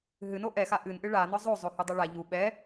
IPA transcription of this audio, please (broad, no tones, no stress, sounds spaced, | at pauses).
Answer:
ɦ ɨ n o ʔ ɛ x a ʔ ɨ n ʔ ɨ ɭ a n ɔ zˤ o zˤ o h u dˤ u ɭ a ʎ u ɓ ɛ